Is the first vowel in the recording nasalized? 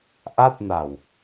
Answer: no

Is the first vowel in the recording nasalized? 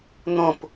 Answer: yes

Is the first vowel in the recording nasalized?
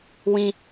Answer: yes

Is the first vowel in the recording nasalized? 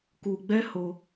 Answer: no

